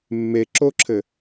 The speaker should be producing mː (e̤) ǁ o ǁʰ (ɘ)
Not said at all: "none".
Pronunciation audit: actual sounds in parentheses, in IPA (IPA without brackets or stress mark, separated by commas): e, ɘ